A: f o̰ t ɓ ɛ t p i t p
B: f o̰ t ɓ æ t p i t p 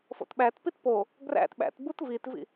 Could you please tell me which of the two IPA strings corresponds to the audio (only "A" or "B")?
B